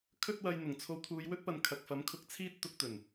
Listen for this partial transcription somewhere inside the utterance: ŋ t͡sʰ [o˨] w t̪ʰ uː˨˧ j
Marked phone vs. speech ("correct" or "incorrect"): incorrect